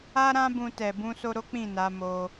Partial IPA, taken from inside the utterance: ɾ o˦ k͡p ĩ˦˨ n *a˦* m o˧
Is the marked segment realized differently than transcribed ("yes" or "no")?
yes